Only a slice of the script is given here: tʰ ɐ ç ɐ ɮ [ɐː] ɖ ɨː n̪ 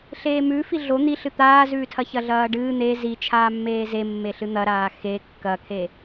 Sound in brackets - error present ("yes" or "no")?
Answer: no